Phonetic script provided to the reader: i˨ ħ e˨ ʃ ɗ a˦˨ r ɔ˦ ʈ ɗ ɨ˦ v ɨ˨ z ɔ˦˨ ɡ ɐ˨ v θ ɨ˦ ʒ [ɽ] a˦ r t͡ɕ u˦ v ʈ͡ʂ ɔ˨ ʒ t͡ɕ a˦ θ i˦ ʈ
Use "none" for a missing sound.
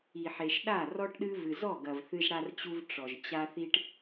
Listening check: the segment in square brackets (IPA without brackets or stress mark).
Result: ɽ